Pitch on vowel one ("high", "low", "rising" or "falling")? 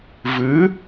rising